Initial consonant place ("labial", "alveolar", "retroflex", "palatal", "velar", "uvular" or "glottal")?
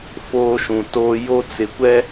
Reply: labial